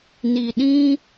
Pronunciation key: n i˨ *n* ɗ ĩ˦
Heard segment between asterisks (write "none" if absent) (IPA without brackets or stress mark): none